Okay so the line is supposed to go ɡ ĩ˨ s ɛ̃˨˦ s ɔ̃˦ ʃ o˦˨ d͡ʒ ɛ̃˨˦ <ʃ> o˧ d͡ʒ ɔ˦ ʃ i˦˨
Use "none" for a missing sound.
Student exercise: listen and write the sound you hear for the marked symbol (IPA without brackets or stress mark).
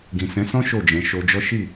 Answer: ʃ